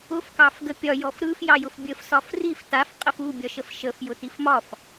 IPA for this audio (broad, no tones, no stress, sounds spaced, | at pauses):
ʊ f k ɑ f ɡ ə pʲ ɒ j ɔ f ɾ ɯ f j ɑ j ʊ f bʲ ə f s ɒ f r i f t a f qʼ ə f u bʲ ɒ ʃ ə f ʃ ə f j ʊ t i f m ɒ f